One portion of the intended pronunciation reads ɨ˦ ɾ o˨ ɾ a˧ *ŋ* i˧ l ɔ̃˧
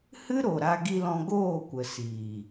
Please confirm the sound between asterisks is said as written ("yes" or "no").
no